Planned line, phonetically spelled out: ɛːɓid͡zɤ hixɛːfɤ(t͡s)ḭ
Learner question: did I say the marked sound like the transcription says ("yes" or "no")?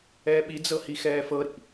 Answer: no